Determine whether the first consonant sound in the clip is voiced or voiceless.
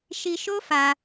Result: voiceless